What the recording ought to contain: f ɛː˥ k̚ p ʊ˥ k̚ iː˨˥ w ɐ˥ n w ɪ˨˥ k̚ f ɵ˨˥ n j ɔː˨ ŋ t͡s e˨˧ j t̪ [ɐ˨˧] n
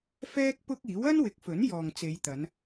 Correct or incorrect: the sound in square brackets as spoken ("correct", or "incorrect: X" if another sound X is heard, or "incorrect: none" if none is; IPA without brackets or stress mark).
correct